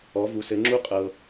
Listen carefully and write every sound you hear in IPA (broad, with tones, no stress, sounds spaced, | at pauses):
ɔ˨˦ v u˨˦ s ɘ˨˦ ŋ͡ǁ u˦˥ qʼ ɤ˨